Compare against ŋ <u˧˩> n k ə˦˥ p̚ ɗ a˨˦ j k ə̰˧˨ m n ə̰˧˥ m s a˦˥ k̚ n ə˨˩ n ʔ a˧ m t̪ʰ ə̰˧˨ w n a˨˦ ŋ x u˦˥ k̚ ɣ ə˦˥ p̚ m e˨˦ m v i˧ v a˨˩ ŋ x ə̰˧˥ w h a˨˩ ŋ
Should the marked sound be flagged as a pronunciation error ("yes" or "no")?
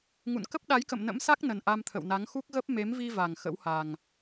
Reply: yes